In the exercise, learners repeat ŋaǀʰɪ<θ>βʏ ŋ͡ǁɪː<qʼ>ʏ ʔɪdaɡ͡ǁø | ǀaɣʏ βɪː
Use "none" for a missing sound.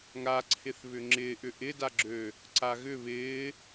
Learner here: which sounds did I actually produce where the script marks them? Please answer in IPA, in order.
θ, ʔ

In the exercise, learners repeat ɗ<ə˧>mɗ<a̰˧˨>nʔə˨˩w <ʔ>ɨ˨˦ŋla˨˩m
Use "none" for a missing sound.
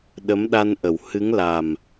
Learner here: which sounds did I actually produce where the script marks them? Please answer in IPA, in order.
ə˨˦, a˧, h

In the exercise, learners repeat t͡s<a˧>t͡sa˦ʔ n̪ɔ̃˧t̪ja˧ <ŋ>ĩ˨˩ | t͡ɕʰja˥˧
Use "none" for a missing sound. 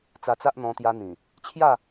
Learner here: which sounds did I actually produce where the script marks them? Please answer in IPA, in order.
a˧, n̪

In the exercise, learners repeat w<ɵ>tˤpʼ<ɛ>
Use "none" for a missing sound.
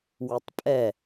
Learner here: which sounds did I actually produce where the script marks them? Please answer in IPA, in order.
ɵ, ɛ

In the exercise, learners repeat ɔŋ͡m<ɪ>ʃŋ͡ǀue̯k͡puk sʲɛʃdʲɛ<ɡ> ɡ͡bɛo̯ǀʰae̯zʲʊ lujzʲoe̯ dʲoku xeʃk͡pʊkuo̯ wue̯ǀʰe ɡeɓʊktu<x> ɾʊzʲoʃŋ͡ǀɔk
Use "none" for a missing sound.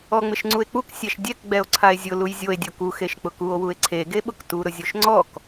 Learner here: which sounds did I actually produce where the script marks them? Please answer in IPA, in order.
ɪ, k, none

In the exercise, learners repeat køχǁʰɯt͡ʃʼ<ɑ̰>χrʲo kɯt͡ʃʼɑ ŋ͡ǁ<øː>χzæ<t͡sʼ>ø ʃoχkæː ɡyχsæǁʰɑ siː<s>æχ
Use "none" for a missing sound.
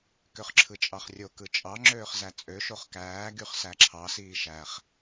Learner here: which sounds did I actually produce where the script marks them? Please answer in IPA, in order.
ɑ, øː, t͡sʼ, ʃ

